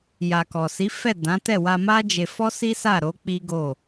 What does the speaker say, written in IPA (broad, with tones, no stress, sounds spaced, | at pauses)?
j a˨ k ɔ˨ s i˨˦ f ɛ˦˨ d ã˨˦ t ɛ˦˨ w a˧ m a˦ d͡ʒ e˧ f ɔ˦ s i˦ s a˦˨ ɾ o˨˦ k͡p i˦ ɡ o˦˨